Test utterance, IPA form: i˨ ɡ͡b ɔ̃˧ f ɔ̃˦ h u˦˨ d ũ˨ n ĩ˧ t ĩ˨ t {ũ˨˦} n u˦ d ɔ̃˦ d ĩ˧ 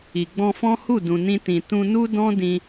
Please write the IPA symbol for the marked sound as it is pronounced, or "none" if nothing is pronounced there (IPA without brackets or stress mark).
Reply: ũ˧